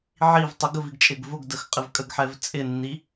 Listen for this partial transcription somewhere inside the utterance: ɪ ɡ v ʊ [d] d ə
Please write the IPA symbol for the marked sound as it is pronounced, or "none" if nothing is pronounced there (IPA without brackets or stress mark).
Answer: ɡ